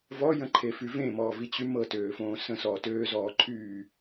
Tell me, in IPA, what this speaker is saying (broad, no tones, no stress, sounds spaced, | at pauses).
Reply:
v ɔ j ə̃ ǃʰ e f y v ẽ m ɔː v i t͡ɕ y m ɤ t øː f õː s ə̃ s ɔː t øː z ɔː ǃʰ yː